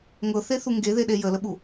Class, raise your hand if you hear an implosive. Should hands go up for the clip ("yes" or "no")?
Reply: yes